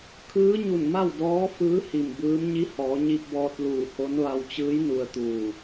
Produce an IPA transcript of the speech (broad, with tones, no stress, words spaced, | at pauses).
kʰɯː˧˥ɲu˧˩nma˥˨w dɔː˧˥ fɯː˧˥ hi˧˩mbɯː˧˥m ɲi˧˥hɔː˩˧ɲi˧p̚bɔː˧t̚ luː˧˩ho˧˥n ʋa˧wt͡ɕɯː˧˥j nu˧ə̯t̪uː˧˩